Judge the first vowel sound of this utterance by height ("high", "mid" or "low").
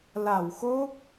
low